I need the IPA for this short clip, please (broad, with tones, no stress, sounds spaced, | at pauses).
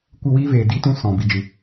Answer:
kʷ ɨ˦˨ w iː˦ v eː˨ d i˦ t ũ˦ s ɔ̃˨ b i˨ d͡ʒ ɨ˨